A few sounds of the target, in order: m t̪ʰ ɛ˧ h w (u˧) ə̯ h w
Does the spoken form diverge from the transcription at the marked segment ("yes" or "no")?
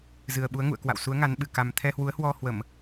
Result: yes